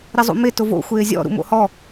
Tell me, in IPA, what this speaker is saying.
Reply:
ɾ ɪ zˤ ṵ m ɪ t ʊ v o̰ xʷ ɪː zʲ ɔ̰ ɾ ṵ m o̰ h ɔ

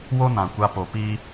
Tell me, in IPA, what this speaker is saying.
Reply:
w o˦ n ã˨ kʷ a˧ p o˨ p iː˦

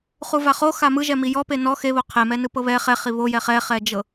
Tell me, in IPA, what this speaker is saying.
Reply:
χ u v a χ o x a m ɯ ʒ ɛ m i j ɔ p e n ɔ x e β o qʰ e m ɛ n ɯ p ɤ β ɛ χ ɛ χ i β o j ɛ χ ɛ χ ɛ d͡ʒ ɤ

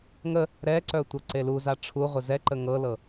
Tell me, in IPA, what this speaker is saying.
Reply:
ŋ ə | ɾ ɛ ǀ œ tʷ ɤ ǀ e l u z a ʈ͡ʂʰ u ʁʷ ɪ z ɛ ǃ ə ŋ ɤ l ɤ

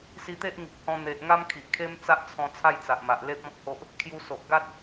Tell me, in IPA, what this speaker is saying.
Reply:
s i˧ t̪ e˦ ʔ ŋ i˨ k̚ h ɔ̃˧ n̪ e˨ ʔ ŋ a˦ m kʰ i˨ ʔ kʰ e˦ m t͡s a˦ ʔ t͡sʰ ɔ̃˧ t͡sʰ a˥˧ j t͡s a˨ ʔ m a˨ ʔ l e˦ p̚ ɔ̃˦ k̚ h o˦ ʔ | kʰ j u˧ s o˨ ʔ ɡ a˦ t̚

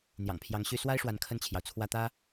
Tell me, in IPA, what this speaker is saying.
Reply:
n̪ j ɑ̰˨˩ ŋ pʰ j ɑ˧˥ ŋ ɕ y˥ s w a˥ ɪ̯ ʂ w a˧˥ n kʰ ə˥˩ n t͡ɕʰ j ɑ˩ ʊ̯ t͡sʰ w ä˥ t̪ ä˥

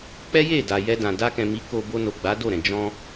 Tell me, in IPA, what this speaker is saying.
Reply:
k͡p ɛ˦ j e˦˨ d a˨ j ɛ˧ d ã˨ d a˧ k ɛ̃˨ m i˨˦ k o˧ b o˧ n o˨ ɡ͡b a˨˦ d o˦˨ ɾ ɛ̃˨ d͡ʒ ɔ̃˧

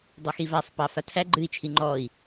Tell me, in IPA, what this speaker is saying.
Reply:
dˤ o x i v a sˤ p ɑ f a tʰ æ ɡ͡ǃ ɨ i̯ t͡ʃʰ i ŋ͡ǃ ɔ i̯

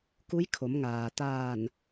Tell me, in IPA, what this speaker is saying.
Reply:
k u˧˥ j kʰ o˩˧ m ŋ aː˩ t̪ aː˧˩ n

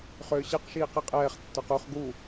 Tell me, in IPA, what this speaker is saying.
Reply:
χ ʏː ɕ ɛ q ʃ iː q i qʼ ɛː χ tː ə˞ q u χ ɡ u

